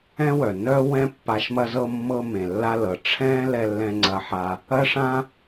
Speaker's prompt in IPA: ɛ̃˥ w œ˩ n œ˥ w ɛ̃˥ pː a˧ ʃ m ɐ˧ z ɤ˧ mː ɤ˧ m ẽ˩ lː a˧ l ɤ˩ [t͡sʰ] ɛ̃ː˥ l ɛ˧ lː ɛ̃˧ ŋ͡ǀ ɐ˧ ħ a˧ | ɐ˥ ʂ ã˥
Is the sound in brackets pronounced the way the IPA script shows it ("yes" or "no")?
no